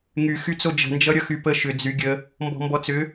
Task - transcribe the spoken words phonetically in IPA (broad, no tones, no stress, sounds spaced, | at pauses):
ŋ y x y t͡s o d͡ʒ ə̤ n d͡ʒ ʌ ɾʲ ʌ x y p ə ʃ ʏ d͡z y ɡʲ ə | m b ɔ̤ m b ɔ t͡s ʏ